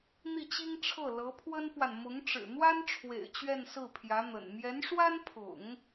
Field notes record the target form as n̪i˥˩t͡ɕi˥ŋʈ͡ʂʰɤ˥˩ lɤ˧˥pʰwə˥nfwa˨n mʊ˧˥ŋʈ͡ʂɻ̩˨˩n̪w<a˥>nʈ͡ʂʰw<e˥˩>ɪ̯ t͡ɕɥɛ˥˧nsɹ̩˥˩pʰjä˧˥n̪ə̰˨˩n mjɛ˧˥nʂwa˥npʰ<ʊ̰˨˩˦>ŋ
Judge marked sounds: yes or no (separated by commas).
yes, no, yes